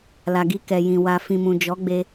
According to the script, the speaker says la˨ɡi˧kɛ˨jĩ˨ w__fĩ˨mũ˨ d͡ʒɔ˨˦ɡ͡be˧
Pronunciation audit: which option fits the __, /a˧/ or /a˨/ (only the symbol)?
a˨